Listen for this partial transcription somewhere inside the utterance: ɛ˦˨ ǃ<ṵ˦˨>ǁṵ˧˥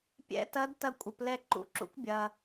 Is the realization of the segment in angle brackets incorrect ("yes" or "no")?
no